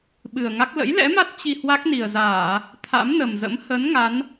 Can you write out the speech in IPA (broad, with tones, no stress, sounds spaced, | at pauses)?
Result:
ɓ ɨ˨˩ ə̯ ŋ a˦˥ k̚ l ə̰˧˥ j l ɛ̰˧˥ m a˦˥ t̚ t͡ɕ i˧ h w a˦˥ k̚ n i˨˩ ə̯ z aː˧˩˨ | t̪ʰ a̰˧˥ m n ə˨˩ m z ə̰˧˥ m h ə˨˦ n ŋ a˨˦ n